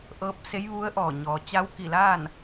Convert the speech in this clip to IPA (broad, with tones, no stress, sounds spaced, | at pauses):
ʔ ɤː˧˥ p̚ s e˧˥ j ʋ u˧˥ ə̯ ʔ ɔː˧˩ ɲ ɔː˩ t͡ɕ a˧˥ w k i˧˩ l a˥˨ n